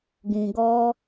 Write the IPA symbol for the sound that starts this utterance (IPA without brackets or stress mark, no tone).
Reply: ɡ